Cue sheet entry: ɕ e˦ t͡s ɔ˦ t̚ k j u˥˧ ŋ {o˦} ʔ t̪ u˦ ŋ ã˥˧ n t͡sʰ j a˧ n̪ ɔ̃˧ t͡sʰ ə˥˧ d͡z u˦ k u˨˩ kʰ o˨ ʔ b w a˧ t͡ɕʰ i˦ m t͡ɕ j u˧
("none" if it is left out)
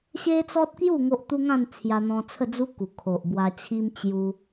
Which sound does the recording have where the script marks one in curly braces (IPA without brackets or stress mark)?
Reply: o˦